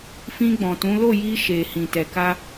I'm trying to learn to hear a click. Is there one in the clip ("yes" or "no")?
no